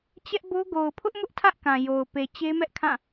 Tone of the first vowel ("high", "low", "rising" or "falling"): high